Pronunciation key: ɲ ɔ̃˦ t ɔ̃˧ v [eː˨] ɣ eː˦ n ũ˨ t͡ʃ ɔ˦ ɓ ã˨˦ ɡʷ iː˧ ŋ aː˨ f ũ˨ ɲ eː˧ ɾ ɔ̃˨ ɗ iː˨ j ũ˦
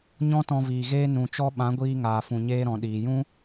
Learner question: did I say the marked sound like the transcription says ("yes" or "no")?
no